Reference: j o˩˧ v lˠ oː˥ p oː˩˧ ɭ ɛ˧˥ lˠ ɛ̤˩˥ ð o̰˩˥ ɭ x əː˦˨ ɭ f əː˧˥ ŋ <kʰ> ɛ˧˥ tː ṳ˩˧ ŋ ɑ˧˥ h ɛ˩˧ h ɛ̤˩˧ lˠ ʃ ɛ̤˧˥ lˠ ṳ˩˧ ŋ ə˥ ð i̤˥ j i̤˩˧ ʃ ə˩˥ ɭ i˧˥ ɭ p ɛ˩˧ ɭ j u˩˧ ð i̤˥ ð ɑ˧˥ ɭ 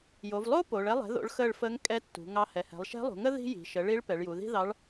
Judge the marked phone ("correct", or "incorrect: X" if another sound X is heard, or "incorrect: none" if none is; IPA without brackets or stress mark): incorrect: kʼ